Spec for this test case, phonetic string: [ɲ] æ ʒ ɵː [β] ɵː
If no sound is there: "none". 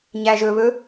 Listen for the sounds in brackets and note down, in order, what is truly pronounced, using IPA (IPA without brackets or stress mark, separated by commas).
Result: ɲ, β